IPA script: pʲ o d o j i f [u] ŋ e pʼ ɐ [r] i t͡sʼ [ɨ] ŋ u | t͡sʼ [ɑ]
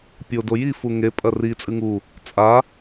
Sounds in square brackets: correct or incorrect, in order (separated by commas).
correct, correct, correct, incorrect